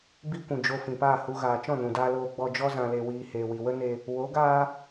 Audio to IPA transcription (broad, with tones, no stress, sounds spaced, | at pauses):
b i˦ kʷ ũ˨ d͡ʒ o˧ f ĩ˨ p aː˦˨ h u˧ ɣ aː˨ t͡ʃ ɔ̃˦˨ n ũ˨ d aː˧ l oː˧ ɡ͡b ɔ˧ d͡ʒ ɔ˦ z ã˧ l e˧ w iː˧ h eː˨ w i˨ w ə˦ n e˧ | w o˨˦ ɡ aː˦